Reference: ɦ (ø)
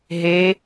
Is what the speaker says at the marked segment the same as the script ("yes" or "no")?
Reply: no